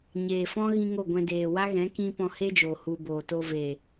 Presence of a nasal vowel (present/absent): present